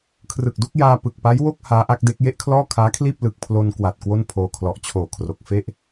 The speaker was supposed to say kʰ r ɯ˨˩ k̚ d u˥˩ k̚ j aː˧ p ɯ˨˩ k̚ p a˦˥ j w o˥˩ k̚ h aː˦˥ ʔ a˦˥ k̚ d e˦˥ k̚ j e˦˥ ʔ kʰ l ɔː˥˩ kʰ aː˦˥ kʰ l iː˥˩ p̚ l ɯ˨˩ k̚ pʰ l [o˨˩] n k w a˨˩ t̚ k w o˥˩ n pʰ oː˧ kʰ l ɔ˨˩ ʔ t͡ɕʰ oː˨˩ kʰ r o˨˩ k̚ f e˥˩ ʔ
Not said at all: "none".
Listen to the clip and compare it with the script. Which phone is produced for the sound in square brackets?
o˧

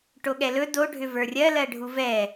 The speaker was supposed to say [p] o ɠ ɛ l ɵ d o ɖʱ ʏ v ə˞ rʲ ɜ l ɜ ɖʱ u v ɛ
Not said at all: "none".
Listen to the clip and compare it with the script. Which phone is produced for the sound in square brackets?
ʈ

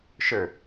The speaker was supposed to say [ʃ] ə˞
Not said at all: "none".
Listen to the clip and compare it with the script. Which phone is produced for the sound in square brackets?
ʃ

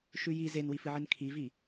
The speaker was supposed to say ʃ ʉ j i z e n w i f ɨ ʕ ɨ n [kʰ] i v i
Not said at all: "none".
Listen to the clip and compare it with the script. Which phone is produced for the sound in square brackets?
kʰ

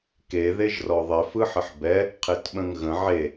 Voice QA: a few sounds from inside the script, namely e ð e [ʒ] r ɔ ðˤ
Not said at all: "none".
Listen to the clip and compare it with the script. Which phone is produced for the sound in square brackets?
ʒ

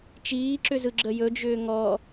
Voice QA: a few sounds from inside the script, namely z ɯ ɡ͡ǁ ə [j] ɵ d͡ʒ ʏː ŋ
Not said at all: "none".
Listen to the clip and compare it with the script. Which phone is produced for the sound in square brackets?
j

